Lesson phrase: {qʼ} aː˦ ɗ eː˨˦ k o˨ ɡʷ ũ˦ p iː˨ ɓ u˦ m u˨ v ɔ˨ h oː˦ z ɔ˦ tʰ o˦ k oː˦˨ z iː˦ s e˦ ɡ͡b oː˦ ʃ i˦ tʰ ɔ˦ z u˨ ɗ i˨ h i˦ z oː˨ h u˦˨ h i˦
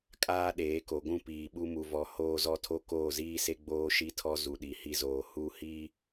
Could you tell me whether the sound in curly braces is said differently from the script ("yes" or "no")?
yes